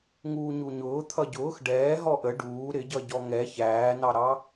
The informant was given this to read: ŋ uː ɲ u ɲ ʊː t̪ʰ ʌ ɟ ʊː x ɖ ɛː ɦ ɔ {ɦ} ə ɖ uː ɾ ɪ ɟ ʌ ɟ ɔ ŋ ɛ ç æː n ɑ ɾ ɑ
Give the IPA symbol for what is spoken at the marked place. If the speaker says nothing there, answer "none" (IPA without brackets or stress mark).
ʔ